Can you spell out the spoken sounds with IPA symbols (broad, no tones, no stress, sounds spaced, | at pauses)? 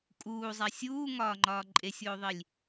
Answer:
kʼ uː zˤ æ sʲ uː ŋ ɒː ŋ͡ǃ ɒː ǃʼ e sʲ oː ðˤ i lʲ